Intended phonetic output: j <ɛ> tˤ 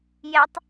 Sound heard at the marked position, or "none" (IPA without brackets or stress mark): ɛ